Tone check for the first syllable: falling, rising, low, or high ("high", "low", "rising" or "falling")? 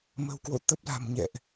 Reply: low